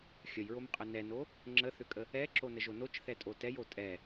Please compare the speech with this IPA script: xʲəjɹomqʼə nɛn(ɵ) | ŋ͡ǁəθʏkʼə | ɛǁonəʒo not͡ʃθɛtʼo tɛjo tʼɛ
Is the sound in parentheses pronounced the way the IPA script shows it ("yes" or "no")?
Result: no